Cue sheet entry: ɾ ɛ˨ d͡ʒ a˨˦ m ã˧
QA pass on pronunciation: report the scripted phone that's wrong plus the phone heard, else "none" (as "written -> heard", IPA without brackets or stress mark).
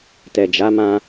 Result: ɾ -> t